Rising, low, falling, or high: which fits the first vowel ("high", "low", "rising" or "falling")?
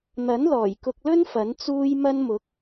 rising